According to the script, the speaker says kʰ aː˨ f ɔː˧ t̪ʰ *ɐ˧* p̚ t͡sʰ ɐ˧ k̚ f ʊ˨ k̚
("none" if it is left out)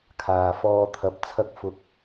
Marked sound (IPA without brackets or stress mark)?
ɐ˨˥